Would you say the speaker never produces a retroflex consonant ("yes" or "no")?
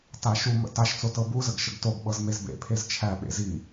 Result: yes